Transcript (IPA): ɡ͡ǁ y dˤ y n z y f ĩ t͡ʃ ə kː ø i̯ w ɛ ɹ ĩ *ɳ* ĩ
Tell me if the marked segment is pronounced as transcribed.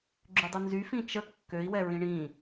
yes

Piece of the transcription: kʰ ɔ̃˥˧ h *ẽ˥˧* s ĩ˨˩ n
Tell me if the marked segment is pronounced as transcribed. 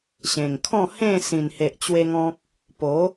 yes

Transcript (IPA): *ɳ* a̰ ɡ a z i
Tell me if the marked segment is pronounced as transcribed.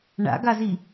yes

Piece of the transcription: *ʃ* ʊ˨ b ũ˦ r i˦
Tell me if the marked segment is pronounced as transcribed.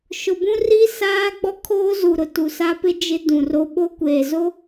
yes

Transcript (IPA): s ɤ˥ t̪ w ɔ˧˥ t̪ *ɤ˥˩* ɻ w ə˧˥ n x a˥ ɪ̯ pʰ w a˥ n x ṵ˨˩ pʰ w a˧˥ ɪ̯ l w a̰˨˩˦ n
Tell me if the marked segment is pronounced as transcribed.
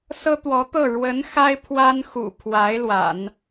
yes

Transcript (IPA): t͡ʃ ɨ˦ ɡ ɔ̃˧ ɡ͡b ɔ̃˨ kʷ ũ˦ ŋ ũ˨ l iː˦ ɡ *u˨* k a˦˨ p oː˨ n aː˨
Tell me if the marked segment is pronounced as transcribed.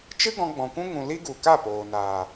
yes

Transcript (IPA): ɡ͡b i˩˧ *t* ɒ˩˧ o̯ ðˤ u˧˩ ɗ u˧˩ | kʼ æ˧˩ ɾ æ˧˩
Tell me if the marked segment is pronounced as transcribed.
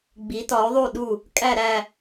yes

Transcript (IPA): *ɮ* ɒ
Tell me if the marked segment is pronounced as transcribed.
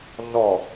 yes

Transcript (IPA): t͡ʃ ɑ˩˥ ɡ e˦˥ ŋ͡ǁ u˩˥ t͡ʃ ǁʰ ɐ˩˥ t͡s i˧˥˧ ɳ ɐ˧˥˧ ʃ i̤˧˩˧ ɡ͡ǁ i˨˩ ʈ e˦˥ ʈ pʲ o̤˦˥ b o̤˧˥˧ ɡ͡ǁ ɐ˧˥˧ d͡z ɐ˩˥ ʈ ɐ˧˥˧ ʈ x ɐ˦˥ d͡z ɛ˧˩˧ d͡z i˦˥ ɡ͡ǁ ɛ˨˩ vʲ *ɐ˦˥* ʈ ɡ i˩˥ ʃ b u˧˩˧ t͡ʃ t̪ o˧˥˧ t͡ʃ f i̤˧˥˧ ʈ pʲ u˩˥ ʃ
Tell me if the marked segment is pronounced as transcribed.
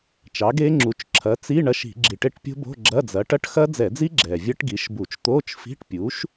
yes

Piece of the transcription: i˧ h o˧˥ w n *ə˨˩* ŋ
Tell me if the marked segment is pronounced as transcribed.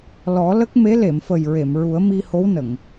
no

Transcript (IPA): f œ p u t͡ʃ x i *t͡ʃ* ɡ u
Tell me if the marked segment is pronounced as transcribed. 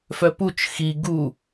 no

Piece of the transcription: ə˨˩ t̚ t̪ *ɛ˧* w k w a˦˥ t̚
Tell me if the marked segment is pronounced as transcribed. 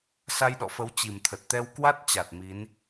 yes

